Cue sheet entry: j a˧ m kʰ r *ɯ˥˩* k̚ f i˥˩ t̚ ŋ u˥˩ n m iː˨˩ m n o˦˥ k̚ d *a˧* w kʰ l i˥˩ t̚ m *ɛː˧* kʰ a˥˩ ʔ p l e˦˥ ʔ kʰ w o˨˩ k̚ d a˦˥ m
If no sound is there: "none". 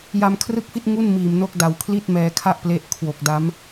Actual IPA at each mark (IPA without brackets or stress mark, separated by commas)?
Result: ɯ˥˩, a˨˩, ɛː˧